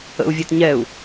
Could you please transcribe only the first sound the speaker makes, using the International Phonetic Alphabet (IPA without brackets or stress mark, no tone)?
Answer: ə̰